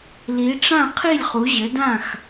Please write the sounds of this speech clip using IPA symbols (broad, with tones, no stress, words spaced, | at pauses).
li˨˦ʈ͡ʂã˥˨ qʰi˥˨lʲχu˨˦ʑɘ˨˦dã˥˨x